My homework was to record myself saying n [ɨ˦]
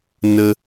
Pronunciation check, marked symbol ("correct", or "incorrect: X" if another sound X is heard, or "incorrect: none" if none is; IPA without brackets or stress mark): incorrect: ə˦